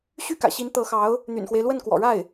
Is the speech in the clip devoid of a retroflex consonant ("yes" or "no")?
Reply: no